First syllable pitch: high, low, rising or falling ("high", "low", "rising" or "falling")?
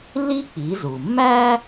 high